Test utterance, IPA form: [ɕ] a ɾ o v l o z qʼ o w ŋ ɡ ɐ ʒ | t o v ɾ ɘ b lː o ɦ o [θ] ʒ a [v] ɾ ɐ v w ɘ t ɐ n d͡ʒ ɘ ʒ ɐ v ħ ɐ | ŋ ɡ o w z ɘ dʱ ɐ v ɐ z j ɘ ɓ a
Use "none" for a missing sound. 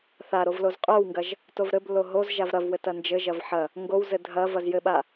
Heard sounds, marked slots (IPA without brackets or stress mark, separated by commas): θ, z, v